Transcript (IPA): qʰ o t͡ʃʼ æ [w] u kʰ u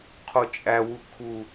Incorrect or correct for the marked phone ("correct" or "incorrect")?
correct